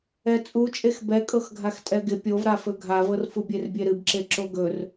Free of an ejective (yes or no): no